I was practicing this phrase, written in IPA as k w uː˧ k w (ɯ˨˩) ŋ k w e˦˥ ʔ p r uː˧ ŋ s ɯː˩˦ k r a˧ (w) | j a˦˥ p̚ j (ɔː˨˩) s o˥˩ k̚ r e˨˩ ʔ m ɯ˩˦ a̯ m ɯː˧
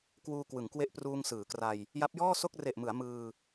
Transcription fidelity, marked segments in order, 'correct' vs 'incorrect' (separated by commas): incorrect, incorrect, incorrect